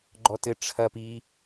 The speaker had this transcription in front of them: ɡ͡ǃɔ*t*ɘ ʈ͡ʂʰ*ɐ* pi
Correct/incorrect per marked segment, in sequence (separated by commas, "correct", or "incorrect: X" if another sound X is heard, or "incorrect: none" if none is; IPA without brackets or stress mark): correct, correct